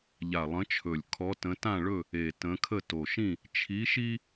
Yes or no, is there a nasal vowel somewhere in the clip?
yes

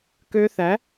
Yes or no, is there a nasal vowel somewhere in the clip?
no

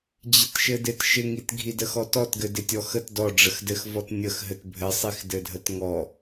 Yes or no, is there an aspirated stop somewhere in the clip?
no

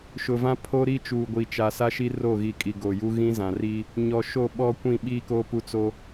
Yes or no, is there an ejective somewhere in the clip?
yes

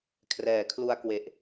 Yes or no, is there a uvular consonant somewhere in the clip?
no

